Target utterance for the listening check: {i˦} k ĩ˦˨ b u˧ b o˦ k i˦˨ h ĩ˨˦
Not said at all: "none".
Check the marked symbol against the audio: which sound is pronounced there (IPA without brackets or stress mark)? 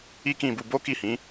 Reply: i˦